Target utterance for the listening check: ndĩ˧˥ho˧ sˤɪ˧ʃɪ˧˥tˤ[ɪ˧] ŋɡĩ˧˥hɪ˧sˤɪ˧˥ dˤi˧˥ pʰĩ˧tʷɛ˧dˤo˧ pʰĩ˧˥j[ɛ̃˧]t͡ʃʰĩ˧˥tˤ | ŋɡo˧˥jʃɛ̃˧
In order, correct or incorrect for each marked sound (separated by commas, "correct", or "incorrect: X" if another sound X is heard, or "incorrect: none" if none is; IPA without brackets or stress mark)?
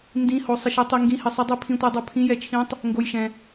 incorrect: i˧, incorrect: ɛ˧